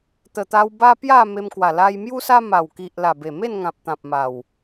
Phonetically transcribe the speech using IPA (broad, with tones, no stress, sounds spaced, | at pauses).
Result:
t̪ ə˨˩ t̪ a˧ w b a˦ p j a˥˧ m e˧ m k w a˨˩ l a˧ j m j u˦ s a˦ m a˨˩ w k i˨ ʔ l a˨˩ b e˨˩ m e˥˧ n ŋ ã˨ p̚ t̪ ã˨ p̚ m a˨˩ w